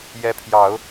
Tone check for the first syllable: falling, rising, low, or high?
rising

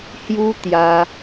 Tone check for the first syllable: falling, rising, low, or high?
high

